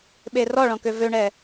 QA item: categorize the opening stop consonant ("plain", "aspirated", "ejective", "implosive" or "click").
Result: implosive